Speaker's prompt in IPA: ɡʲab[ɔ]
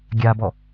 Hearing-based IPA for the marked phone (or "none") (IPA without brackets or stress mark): ɔ